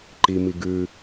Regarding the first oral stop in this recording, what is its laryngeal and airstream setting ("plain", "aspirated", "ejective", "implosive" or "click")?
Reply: click